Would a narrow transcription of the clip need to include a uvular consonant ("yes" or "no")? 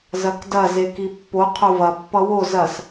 yes